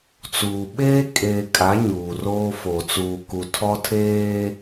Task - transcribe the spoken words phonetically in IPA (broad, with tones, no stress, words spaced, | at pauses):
t͡suː˨ ɓeː˦kʼeː˨kʼa˨˦ ɲuː˨ roː˦fo˨ t͡suː˨ku˨tʰɔ˦ tʰeː˦